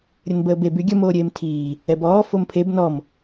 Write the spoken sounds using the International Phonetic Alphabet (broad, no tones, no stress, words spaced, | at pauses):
ɾʲənbəːbeb yɡʲə moːɾʲeːmtʰiː | ɛbɔː fompʰeb nɔm